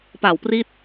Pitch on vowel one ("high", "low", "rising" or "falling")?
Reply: low